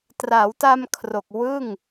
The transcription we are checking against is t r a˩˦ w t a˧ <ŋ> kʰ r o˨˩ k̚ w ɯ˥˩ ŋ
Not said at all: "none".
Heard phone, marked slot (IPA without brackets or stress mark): m